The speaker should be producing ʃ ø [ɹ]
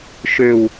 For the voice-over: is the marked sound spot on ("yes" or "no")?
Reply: no